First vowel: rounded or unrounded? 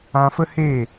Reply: unrounded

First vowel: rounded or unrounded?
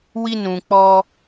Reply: unrounded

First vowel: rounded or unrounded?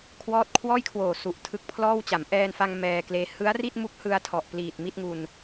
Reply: rounded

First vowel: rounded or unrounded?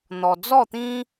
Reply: rounded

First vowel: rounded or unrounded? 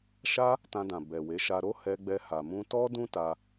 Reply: unrounded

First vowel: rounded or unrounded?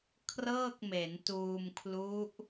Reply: unrounded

